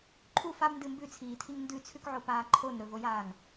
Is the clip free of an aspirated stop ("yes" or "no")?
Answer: no